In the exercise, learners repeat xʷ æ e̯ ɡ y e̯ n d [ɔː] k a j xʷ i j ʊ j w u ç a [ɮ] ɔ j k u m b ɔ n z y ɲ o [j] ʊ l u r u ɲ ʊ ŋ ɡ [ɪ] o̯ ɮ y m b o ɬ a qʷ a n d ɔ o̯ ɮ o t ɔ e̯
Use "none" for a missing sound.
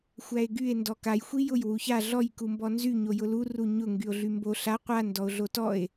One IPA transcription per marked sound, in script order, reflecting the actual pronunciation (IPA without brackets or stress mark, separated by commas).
ɔ, ɮ, j, y